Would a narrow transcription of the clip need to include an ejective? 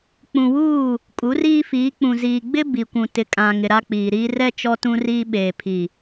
yes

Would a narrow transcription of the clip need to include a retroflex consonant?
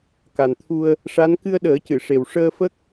yes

